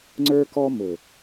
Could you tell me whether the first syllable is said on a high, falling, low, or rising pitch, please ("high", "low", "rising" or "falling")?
high